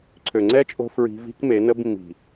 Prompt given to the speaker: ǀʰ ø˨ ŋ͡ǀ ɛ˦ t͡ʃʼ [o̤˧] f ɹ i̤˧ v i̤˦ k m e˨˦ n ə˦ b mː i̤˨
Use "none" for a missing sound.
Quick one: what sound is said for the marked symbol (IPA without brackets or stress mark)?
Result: o̤˧